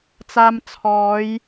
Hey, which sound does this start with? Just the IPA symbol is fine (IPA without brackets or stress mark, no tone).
t͡s